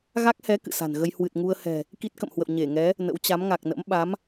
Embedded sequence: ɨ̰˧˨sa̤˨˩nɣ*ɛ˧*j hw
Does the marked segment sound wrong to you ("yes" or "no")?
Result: yes